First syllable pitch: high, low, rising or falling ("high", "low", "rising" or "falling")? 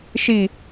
falling